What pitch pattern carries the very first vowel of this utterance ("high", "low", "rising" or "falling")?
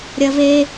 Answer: high